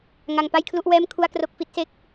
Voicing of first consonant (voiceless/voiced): voiced